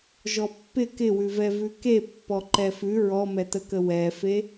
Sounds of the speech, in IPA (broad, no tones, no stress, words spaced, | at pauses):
ʒɔpːɪ kɪwʉvɛ vʉkepːɔ ǃɛfʉ ɹɔmɛtəkə wɛfe